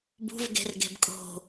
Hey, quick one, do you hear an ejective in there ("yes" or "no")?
yes